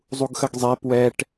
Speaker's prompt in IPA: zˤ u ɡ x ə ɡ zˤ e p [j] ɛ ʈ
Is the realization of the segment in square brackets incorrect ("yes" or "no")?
yes